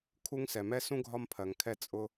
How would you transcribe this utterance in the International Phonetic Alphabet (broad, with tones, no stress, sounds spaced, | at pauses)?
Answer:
kʰ u˦ ŋ s ɛ˩ m ɛ˥ s ũ˥ ɡʱ ɒ˦ m pʰ ɜ˩ ŋ kʰ ɛ˦ t͡sʼ ʊ˦